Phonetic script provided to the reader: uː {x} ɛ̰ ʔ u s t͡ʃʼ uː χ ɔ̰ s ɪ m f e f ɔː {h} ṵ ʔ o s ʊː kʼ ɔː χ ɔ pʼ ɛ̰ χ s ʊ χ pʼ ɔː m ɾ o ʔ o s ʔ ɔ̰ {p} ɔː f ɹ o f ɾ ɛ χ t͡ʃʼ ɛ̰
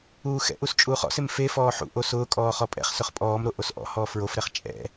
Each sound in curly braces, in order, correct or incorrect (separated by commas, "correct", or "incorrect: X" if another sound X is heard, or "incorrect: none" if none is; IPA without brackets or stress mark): correct, incorrect: ħ, incorrect: h